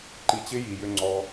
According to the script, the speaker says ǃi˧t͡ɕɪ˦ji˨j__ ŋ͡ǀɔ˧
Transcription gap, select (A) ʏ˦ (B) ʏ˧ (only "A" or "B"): B